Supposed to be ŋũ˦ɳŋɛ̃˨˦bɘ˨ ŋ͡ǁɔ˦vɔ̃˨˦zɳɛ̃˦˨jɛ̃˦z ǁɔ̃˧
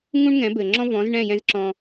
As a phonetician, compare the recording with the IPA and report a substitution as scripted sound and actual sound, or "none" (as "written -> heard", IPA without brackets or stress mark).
ɔ˦ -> ɔ̃˦